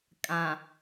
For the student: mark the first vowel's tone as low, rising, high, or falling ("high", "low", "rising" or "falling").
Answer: low